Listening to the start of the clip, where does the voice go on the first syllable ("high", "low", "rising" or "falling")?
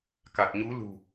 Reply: low